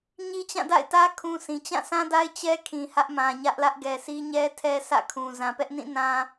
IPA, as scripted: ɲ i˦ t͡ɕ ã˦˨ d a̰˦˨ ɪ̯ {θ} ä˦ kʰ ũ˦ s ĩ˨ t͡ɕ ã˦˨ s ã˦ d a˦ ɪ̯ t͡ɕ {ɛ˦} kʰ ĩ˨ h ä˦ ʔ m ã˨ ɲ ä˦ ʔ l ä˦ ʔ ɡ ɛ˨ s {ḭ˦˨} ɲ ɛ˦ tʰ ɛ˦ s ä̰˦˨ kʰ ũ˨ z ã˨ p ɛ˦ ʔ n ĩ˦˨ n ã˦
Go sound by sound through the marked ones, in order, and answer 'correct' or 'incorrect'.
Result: incorrect, correct, incorrect

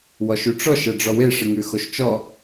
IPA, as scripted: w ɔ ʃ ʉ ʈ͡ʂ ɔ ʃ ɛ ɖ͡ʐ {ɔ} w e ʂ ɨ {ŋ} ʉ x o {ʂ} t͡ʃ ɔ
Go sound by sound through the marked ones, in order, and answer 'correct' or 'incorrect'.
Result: correct, correct, incorrect

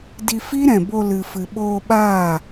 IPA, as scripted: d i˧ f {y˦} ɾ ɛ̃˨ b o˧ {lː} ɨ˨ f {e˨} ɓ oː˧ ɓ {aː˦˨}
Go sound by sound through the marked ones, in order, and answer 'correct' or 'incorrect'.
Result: incorrect, incorrect, incorrect, correct

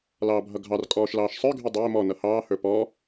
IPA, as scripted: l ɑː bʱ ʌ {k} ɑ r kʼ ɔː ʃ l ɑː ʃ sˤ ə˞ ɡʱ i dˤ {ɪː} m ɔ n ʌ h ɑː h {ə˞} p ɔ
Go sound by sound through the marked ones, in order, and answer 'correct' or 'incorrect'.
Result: incorrect, correct, correct

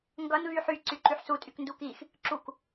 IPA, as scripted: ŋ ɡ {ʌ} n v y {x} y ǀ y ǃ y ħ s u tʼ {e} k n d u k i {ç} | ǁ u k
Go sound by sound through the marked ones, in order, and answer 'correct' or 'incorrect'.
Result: correct, incorrect, incorrect, incorrect

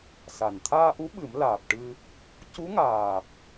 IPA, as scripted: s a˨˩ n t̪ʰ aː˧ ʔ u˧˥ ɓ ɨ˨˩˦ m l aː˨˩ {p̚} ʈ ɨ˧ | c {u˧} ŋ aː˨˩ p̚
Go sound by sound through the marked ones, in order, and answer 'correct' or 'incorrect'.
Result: correct, incorrect

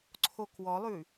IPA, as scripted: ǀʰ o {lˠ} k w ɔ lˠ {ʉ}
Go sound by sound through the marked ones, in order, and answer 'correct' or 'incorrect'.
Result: incorrect, correct

